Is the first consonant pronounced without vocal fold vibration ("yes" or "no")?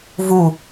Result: no